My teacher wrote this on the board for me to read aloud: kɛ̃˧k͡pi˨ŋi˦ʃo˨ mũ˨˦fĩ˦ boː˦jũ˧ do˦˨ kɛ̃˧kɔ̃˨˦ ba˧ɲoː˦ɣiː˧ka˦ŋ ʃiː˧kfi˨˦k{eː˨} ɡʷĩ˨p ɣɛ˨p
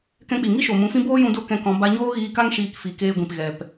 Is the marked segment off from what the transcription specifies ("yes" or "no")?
yes